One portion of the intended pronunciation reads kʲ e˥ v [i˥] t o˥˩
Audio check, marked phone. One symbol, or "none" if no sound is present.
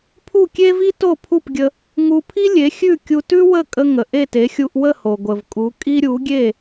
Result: i˥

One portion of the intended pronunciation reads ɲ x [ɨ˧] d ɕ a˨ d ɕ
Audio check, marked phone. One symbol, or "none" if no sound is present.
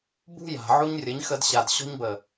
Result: ə˧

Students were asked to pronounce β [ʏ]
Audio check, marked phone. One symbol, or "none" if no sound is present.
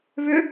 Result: ʏ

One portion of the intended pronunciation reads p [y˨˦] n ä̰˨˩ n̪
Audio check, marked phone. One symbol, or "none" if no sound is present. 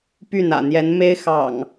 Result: y˥˨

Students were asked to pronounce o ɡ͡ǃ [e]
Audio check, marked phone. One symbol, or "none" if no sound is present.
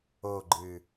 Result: ɨ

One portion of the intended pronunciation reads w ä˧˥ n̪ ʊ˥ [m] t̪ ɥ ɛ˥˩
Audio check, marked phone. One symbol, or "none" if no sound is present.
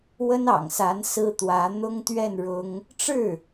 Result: ŋ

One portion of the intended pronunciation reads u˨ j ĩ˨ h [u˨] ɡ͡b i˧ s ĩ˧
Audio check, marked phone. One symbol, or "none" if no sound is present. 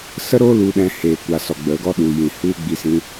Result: u˦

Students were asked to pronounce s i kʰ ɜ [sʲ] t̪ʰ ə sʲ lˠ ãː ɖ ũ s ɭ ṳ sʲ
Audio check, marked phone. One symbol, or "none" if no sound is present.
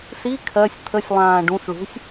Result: sʲ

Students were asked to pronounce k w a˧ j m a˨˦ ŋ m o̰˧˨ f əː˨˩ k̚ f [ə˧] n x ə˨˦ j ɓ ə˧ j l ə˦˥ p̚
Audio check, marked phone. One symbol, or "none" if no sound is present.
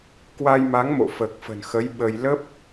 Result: ə̤˨˩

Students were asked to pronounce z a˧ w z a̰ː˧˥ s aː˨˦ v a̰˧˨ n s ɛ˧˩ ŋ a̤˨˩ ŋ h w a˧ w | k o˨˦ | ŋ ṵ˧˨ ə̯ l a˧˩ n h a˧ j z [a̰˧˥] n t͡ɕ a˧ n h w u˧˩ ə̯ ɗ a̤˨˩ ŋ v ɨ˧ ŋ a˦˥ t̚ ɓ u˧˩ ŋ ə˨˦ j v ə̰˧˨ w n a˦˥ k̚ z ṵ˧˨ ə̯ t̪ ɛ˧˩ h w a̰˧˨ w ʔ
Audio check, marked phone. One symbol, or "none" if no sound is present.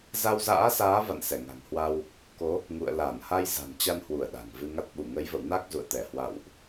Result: a̤˨˩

